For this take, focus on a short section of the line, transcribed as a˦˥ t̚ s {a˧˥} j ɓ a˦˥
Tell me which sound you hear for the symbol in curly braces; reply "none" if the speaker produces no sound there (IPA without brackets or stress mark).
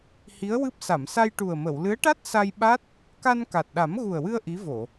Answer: a˧